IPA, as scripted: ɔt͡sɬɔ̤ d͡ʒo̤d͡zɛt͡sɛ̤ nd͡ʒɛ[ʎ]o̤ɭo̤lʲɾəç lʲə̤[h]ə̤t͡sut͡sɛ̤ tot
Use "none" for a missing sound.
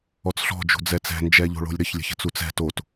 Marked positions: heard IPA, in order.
ʎ, ç

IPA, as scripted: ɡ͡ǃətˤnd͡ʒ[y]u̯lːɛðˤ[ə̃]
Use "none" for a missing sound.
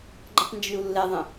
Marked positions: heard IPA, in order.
y, ə̃

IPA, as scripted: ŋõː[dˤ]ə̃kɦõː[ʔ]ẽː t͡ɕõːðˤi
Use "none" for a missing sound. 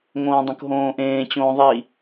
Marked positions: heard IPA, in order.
dˤ, ʔ

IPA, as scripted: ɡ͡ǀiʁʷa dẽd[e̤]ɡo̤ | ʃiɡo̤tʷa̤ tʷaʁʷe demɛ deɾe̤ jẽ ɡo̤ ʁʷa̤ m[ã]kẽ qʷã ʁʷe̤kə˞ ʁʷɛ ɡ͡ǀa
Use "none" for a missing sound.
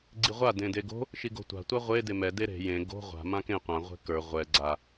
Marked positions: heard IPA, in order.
e, ã

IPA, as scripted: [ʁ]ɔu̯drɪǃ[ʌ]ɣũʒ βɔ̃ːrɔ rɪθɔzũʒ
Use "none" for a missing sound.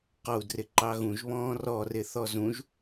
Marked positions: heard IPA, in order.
q, ɑ

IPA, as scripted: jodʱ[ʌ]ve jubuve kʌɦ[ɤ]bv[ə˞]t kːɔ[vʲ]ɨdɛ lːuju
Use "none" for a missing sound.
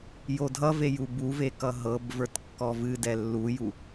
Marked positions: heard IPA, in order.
ʌ, ɤ, ə˞, v

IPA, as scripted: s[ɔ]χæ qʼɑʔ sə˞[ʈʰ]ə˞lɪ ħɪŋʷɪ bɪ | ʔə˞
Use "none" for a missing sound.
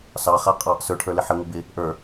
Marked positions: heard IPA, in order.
ɑ, ʈʰ

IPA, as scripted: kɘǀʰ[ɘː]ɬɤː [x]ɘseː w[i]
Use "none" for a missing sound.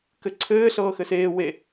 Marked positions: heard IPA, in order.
ɘː, x, e

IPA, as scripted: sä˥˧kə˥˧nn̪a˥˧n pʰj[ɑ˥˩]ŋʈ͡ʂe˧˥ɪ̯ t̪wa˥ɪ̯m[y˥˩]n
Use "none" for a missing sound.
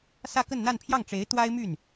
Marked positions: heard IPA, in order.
ɑ˥˩, y˥˩

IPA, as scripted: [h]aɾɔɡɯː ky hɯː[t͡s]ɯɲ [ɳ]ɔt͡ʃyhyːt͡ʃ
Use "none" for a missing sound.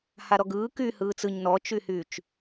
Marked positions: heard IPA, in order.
h, t͡s, n

